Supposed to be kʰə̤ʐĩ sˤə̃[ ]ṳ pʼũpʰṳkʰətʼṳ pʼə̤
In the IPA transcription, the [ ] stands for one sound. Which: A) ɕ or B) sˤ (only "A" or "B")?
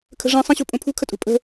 A